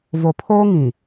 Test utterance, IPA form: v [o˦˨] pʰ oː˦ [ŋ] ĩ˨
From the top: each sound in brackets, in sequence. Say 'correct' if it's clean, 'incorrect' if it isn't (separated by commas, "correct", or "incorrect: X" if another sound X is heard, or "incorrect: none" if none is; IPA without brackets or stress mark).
incorrect: o˨, correct